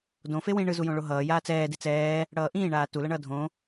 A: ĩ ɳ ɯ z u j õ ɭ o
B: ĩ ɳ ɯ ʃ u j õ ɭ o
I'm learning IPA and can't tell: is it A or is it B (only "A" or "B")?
A